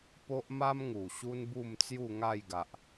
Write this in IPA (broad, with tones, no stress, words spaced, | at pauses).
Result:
po˦ʔma˦mŋu˨˩ ɕu˦nbu˥˧mt͡sju˥˧ ŋa˥˧jɡa˨ʔ